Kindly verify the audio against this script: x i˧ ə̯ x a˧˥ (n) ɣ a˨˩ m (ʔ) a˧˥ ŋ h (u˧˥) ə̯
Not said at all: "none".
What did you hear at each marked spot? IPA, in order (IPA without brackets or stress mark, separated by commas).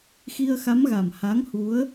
m, h, u˧˥